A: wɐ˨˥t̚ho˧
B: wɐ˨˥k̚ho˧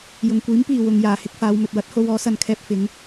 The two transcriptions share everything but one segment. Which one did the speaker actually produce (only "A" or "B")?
A